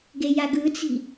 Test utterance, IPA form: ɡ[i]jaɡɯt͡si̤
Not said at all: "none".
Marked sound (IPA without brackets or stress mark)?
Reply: e